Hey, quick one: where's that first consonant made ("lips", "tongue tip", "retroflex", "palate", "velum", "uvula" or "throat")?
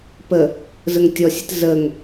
lips